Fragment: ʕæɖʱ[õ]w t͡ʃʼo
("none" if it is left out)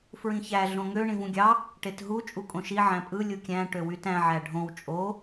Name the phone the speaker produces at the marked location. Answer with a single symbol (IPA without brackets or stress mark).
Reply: õ